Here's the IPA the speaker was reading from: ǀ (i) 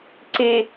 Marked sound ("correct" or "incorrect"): correct